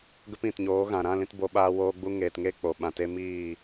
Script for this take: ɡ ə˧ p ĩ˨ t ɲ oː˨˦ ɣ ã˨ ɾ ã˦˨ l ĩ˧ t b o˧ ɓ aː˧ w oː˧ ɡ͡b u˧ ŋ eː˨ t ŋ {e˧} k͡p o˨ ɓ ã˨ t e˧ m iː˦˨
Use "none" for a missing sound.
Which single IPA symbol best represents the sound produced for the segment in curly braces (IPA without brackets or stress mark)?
e˦˨